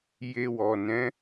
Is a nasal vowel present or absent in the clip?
present